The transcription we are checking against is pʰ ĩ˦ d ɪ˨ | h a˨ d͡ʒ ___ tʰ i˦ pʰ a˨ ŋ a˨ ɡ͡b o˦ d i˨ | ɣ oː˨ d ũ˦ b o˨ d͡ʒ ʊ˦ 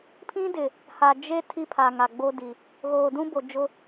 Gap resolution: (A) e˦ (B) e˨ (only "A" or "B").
A